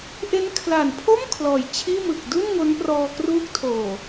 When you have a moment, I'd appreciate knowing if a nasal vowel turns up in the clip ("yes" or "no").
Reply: no